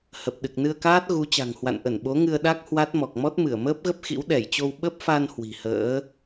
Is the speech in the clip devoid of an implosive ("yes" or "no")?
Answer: no